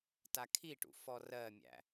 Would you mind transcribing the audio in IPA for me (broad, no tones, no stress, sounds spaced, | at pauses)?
t a kʰ i ʈ ṵ f ɔ r ɜ mʲ æ̰